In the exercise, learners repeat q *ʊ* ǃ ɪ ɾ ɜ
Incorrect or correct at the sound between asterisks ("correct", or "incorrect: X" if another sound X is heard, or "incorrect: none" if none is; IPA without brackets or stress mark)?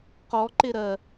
incorrect: ɔ